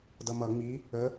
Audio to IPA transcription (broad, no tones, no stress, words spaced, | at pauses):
dʌmʌ ŋ͡mi | ə